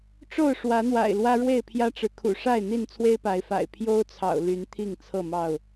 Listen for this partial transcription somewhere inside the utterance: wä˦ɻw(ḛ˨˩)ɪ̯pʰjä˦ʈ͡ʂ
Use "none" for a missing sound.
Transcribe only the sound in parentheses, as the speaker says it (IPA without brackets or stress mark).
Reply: e˥˨